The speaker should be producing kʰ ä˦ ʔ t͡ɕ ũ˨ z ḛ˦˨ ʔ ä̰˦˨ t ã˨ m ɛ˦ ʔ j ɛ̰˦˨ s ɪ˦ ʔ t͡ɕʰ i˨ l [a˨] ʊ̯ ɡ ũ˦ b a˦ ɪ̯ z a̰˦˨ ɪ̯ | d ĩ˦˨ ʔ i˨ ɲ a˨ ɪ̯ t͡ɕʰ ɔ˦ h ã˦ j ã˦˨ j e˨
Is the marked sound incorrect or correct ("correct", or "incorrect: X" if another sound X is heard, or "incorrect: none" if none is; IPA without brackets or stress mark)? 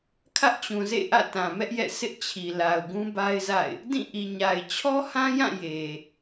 correct